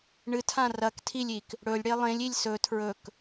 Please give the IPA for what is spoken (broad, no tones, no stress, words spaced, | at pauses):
ɳɨtʰã rɐk tʰilʲik | ɽɵlʲɽe lˠẽlʲilʲ sɵ tʰɹɵk